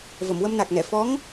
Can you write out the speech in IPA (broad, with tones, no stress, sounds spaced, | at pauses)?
v ə˨˩˨ m w ə˧ m n a˨˩ k̚ n ɛ˨˩˨ f ɔ˧˥ ŋ